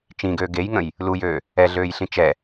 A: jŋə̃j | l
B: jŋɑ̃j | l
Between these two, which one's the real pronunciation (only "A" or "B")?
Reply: A